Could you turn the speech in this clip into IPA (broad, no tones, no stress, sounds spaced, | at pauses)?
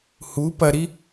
h u p ɐ ɾ i